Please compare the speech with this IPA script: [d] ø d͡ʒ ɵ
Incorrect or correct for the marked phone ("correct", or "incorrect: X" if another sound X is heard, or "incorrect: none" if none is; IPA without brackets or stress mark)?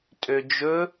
incorrect: tʼ